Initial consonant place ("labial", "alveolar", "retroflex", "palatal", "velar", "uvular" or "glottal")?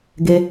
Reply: velar